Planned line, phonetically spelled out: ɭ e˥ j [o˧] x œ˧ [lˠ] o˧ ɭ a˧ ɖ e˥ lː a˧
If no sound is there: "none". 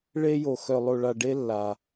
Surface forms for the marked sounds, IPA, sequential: o˧, lˠ

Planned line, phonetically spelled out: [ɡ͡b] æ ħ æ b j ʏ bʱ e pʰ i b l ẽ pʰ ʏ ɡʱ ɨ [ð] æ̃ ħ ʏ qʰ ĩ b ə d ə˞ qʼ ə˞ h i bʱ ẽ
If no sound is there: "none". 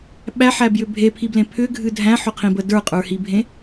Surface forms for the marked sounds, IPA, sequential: ɓ, dʱ

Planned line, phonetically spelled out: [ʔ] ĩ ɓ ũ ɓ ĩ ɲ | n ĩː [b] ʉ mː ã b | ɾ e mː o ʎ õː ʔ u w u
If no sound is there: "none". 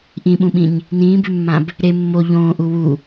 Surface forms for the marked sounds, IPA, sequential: ʔ, b

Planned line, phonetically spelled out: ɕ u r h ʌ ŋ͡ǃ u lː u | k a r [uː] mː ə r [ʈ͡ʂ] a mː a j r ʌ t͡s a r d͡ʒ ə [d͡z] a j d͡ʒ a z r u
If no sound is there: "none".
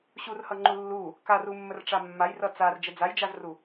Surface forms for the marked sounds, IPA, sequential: u, ʈ͡ʂ, d͡z

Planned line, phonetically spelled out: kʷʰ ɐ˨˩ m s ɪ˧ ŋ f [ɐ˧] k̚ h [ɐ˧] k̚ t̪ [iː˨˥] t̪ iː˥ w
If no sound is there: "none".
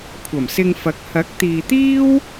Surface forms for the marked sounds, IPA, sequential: ɐ˨˥, ɐ˨˥, iː˨

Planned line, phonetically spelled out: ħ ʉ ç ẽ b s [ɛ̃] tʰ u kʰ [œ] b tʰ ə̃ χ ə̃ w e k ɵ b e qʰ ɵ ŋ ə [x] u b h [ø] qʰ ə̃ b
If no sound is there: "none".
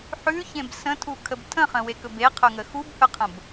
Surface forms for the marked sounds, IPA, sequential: ə̃, ə, x, ɵ

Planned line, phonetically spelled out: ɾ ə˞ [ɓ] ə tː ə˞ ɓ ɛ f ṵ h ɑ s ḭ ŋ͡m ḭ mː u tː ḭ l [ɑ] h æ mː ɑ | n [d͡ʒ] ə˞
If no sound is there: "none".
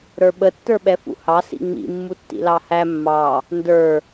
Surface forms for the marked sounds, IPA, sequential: ɓ, ɑ, d

